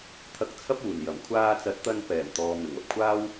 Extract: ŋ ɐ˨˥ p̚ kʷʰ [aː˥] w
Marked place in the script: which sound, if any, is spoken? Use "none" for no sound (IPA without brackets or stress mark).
aː˥